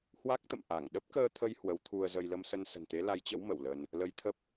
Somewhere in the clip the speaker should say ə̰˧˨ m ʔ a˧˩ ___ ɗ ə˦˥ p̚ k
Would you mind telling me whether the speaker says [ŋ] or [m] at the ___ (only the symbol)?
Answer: ŋ